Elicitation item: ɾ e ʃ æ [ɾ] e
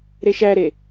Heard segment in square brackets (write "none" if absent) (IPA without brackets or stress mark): ɾ